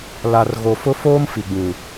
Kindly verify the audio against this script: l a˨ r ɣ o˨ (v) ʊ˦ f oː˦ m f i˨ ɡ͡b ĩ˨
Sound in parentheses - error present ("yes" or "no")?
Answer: yes